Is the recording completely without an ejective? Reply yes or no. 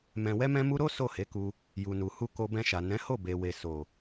yes